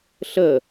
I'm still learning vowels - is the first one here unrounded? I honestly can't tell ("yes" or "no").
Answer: yes